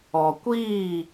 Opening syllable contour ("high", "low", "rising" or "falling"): low